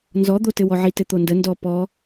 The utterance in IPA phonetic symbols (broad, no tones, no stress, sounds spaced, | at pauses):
n z ɔ d̪ o t ɘ w ɔ ʕ i t ɘ t̪ o n d ə n d ɔ p ɔ